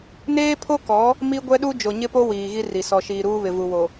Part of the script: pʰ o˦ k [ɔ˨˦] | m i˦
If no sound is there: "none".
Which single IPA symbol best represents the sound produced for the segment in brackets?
ɔ˨˦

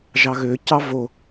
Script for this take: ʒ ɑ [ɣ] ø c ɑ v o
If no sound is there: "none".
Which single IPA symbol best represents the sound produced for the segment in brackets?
ɣ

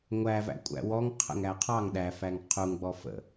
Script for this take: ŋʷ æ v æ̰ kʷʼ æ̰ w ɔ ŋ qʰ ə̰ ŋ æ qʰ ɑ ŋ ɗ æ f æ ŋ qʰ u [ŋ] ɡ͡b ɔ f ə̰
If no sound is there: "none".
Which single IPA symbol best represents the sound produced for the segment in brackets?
ŋ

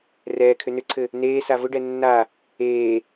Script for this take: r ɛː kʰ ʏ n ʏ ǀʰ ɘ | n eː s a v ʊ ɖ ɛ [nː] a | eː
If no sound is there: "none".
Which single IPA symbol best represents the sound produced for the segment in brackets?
nː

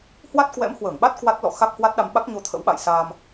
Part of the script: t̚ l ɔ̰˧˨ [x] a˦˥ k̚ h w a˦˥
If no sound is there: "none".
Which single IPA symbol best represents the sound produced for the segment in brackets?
x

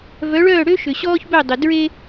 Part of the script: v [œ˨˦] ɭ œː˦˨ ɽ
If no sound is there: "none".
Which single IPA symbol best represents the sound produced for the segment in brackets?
œ˨˦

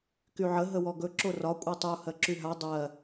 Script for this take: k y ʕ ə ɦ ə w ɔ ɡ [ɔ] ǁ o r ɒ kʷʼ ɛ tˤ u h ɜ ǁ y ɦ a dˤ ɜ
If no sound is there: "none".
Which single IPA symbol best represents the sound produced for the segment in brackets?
ɵ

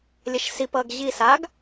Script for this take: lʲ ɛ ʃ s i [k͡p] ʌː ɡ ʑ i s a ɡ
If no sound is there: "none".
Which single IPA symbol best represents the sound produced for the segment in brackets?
p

